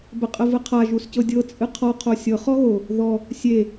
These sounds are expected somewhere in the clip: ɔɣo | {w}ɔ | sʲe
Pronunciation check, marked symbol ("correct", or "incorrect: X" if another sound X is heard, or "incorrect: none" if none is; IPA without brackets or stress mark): incorrect: ð